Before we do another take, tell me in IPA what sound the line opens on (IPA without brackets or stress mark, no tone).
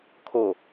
kʰ